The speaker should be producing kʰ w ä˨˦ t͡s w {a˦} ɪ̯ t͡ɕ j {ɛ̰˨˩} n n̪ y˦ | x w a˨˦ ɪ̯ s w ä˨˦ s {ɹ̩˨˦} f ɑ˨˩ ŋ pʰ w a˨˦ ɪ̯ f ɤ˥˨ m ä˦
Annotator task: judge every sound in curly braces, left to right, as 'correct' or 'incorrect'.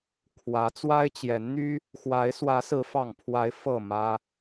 correct, incorrect, correct

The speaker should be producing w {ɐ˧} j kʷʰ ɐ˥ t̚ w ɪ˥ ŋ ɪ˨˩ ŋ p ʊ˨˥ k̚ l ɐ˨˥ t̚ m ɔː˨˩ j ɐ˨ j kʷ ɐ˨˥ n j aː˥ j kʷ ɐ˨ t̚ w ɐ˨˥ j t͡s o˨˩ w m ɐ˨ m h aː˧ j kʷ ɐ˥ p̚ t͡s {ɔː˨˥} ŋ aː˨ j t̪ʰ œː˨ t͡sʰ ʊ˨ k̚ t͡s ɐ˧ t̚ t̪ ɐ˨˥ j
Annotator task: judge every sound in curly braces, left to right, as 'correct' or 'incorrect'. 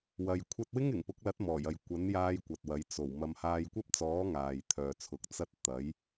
correct, correct

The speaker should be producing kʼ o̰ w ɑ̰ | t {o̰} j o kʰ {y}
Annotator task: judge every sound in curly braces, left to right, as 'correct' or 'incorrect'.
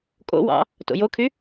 correct, correct

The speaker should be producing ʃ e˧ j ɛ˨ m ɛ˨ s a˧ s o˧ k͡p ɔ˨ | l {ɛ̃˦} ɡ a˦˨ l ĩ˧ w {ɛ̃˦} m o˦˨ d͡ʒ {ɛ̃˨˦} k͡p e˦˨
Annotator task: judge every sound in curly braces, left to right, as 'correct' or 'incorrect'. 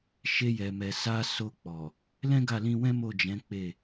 correct, correct, correct

